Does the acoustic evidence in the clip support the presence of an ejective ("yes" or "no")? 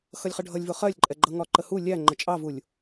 yes